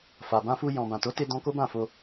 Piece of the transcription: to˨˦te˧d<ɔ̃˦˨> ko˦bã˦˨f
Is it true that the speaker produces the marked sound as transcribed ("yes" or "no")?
no